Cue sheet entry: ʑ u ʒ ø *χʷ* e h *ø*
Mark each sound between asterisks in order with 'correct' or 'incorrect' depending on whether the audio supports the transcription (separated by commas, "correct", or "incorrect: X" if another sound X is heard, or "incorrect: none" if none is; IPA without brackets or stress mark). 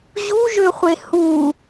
correct, incorrect: u